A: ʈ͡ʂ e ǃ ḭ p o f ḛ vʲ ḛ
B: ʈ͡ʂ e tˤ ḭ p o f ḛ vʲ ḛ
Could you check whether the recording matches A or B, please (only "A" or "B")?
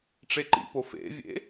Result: A